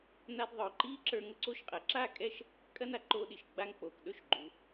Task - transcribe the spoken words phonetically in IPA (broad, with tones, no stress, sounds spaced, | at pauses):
n a˧ d ðˤ ə˞˨ ǃ iː˦ ǁ ə˞˧ ŋ ə˦ ǀ o˦ ʃ qʼ ɐ˨ ǁ a˦˨ kʼ ɛ˦˨ ʃ | kʼ ɐ˦ n a˧ ǃ oː˧ ɗ i˨ ʃ ɡ͡b a˧ ŋ k͡p oː˨ k ɗ ɵ˦˨ ʃ ɡ͡ǃ u˨˦